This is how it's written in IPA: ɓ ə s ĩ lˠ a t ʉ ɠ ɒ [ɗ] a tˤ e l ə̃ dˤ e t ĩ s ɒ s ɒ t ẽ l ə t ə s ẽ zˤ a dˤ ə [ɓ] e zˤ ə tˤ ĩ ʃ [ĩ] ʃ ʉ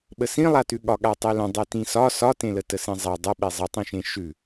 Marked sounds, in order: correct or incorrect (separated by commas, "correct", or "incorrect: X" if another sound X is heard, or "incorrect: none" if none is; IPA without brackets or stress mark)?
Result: incorrect: ɠ, correct, incorrect: ẽ